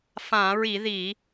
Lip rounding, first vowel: unrounded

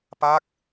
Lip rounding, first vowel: unrounded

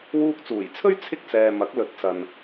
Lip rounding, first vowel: rounded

